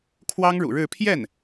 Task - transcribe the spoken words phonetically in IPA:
kʰ w ɑ˥ ŋ ɻ ṵ˨˩ ɻ ɻ̩˥˧ pʰ j ɛ˥˩ n

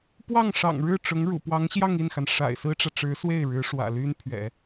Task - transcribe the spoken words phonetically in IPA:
p w ɑ˥˩ ŋ ʂ ɑ̰˨˩ ŋ ɻ ɻ̩˥˩ ʈ͡ʂ ʊ˧˥ ŋ ɻ ṵ˨˩ p w ɑ˧˥ ŋ ɕ j ɑ˥˧ ŋ i˥˩ n x a˩ n ʂ a̰˨˩ ɪ̯ s ɹ̩˥ ʈ͡ʂ ä˨ ʈ͡ʂ ɻ̩˧˥ s w e˥˩ ɪ̯ ɻ ɻ̩˧˥ ʂ w ä̰˨˩ l y˥ n pʰ ɥ ɛ̰˨˩˦

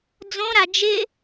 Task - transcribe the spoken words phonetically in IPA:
d͡z õ ɾ a d͡ʒ ɪ

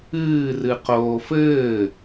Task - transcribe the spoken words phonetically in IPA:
ɨː r ɨ q oː f ɘː

